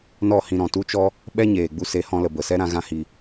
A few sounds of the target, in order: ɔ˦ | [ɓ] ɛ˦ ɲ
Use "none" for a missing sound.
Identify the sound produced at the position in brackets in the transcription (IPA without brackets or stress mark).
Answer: ɓ